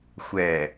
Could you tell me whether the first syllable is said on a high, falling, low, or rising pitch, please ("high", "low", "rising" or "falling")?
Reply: low